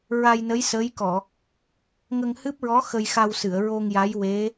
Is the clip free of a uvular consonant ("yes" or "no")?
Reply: yes